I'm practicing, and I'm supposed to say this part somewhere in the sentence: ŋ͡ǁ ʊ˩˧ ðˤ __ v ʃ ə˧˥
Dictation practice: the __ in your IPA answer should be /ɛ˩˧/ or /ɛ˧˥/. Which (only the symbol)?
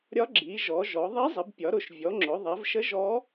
ɛ˩˧